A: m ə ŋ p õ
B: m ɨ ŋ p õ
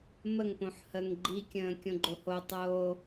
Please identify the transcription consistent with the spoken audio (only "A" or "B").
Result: A